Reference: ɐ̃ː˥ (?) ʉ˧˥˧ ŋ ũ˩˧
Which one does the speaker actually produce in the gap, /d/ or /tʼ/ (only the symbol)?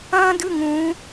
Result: d